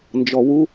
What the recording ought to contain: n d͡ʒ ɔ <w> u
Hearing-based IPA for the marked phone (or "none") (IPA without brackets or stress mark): w